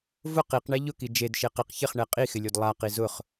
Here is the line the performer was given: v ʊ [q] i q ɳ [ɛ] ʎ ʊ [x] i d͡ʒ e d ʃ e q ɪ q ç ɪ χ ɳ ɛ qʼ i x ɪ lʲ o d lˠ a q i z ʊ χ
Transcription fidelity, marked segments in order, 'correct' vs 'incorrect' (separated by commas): correct, correct, incorrect